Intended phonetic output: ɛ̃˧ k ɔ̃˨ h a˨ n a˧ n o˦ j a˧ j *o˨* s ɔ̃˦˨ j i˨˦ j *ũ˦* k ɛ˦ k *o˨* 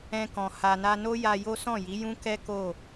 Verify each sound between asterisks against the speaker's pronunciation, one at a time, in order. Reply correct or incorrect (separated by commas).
incorrect, correct, incorrect